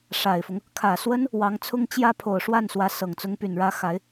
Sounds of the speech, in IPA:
ʂa˨˩ɪ̯fʊ˦ŋ | kʰä˨˩swə˥n | wɑ˧˥ŋt͡sʰʊ˥ŋ t͡ɕjä˥ pʰo˨˩ʊ̯ʂwa˥˩nswä˧˥ sɤ˨˩ŋt͡sʊ˥ŋ py˨˩nɻä˧˥ xa˧˥ɪ̯

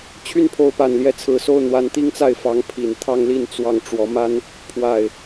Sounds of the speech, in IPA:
t͡ɕʰy˥˨npʰo˨˦ʊ̯pa˨˩n ljɛ˨˦t͡sʰɹ̩˨˩so˥˨ʊ̯ n̪wa˨˦nt̪i˦ŋt͡sa˥˨ɪ̯ fɑ˨˦ŋpʰi˨˩n t̪ʰɑ˦ŋli˥˨n t͡swɑ˥˨ŋ ʈ͡ʂwɔ˨˦ma˦n | pʰwa˨˩ɪ̯

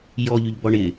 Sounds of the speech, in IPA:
jɔʎyʎ bɔɳɪ

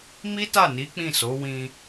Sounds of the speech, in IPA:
mi˦ta˦˨ni˨˦ k͡pĩ˦˨so˨˦ wĩ˧

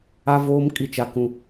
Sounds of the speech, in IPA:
a˦voː˦mkʼi˦˨t͡ʃa˦ kũ˦

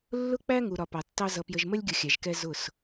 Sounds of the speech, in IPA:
lːʊ˦k͡pæ˦ŋu˨ ɾɒ˨pɑ˨tːɑ˦ zʌ˨pjə˨ʒmə˦lʲɡʲʊ˨ xʲæ˨ʒkɛ˦ zʊ˦˨s

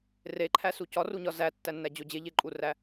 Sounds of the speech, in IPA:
reǃʰæsu cɒruɲɒ zætːænːæd͡ʑo d͡ʑeʎeǃʼuræ

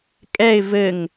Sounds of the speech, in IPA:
kʼɛɪ̯ vɘŋ

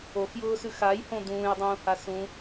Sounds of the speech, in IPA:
oxjʊːsʉx ajhõ d̪ũːjdˤũːha sũ

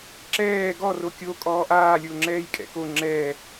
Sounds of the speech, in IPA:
ǁɛː ɡɔ rokʲo kʼɔːʔaːlʲʊː ŋ͡ǁɛːjkʼɛ̰ko ŋ͡ǁɛː

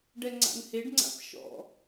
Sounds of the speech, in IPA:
ɖɛŋ͡ǀa̰nheɖŋ͡ǀa̰p ʃɔ̰

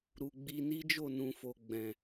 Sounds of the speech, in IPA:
ɾu˨ɡ͡bi˧ ni˦d͡ʒo˦˨nũ˨fo˨ ɡ͡bɛ̃˨

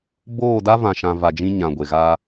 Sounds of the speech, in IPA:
boː˦˨da˦vã˨ʃã˨ va˨d͡ʒĩ˦ ɲã˨ɡʷe˨ɣaː˦

